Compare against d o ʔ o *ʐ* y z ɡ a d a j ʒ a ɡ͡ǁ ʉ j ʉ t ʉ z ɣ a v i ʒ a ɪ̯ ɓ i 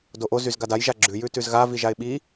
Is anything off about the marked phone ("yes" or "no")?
yes